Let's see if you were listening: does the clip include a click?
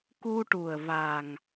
no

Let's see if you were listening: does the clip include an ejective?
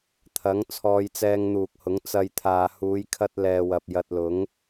no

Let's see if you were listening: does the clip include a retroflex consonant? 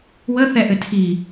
no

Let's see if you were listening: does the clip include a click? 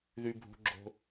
yes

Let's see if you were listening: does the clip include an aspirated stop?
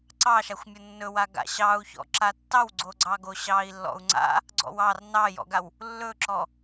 no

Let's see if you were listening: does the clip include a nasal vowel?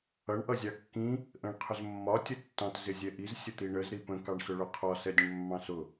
yes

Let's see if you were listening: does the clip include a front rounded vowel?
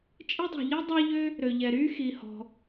yes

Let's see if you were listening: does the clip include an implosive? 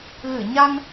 no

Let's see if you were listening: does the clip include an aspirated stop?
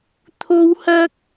yes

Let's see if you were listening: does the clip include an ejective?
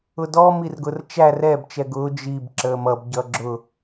no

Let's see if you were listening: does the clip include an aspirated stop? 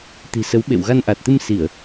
no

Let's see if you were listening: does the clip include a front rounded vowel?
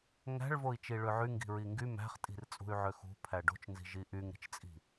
yes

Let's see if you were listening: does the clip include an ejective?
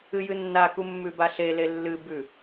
no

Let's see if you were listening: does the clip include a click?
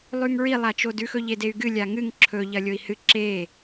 yes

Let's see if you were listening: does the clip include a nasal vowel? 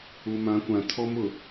yes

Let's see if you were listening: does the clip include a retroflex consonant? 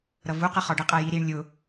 yes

